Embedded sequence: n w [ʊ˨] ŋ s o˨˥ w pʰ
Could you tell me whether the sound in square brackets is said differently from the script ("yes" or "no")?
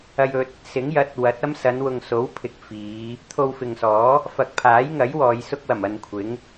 no